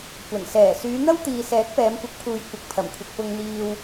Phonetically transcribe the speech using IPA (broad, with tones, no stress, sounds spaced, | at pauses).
kʷ ɐ˨˩ n s ɛː˨˩ s yː˨˧ n̪ ɐ˥ w t̪ iː˨ s ɛː˨˥ k̚ p ɛː˨˧ m kʷ ɐ˨˥ k̚ pʰ uː˨ j kʷ ɐ˨˥ k̚ pʰ ɐ˨˩ m kʷʰ ɐ˨ k̚ p ʊ˧ ŋ n̪ iː˧ w